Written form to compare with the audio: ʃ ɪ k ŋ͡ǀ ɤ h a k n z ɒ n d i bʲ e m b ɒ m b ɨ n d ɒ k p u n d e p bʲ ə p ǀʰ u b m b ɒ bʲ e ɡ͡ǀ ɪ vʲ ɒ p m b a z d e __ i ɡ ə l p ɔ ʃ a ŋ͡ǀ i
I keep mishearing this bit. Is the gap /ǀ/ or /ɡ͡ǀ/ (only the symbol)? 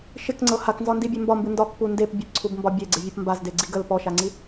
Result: ɡ͡ǀ